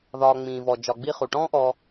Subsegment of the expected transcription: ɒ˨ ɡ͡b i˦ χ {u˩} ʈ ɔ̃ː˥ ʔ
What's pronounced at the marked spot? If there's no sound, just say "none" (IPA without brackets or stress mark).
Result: u˩